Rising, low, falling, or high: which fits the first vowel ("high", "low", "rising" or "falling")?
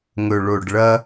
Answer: low